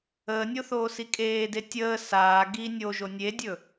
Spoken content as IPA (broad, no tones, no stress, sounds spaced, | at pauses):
əː nʲ o θ oː s i kʼ eː d e tʲ əː s aː ɡ i nʲ o ʒ o nʲ e dʲ ɵ